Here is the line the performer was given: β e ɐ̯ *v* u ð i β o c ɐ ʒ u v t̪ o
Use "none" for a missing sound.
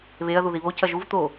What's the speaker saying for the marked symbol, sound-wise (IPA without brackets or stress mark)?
ð